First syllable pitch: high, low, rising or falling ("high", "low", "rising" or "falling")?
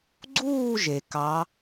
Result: falling